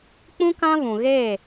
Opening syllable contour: high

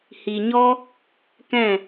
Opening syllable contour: low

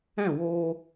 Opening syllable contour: falling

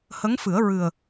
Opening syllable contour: rising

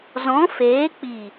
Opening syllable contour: rising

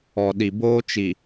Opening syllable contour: low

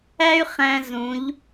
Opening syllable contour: high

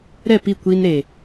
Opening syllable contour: falling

